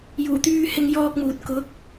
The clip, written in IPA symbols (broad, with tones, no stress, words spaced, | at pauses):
juː˨˩t̪yː˧ hɪ˧ŋjɔː˧k̚muː˨t̚ kʊ˨˥k̚